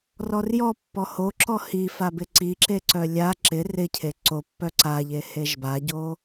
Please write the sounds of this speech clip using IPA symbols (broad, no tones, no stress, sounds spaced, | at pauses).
r ɔ r j ɔ pː ɔ h o ǁ ɔ h i f a b ɪ ǀ i ǁ e ǀ œ lʲ a ǁ ɪ r ɪ cʰ e ǀ o pː œ ǀ a ʎ e h e ʒ b a ɟ o